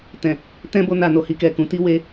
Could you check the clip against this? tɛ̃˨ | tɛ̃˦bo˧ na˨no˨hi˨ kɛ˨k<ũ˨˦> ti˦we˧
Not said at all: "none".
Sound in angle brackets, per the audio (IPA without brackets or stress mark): ũ˨˦